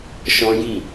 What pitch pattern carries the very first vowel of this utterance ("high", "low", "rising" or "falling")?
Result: high